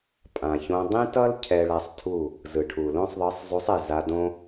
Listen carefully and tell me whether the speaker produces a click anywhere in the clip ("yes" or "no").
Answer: no